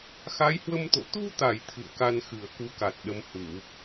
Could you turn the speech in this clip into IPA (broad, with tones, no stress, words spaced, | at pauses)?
xa˨˦jhwə˧mt̪o̰˧˨ t̪u˧t̪a˧˩j t̪ʰɨ̰˧˨ə̯ka˧nxɨ˧˩ə̯ ku˨˦ka˨˩t̚ ɗə˨˦mhu˧˩˨